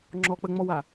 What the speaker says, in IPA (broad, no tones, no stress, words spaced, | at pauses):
ŋ͡ǁɔk͡pəŋ͡mɔwa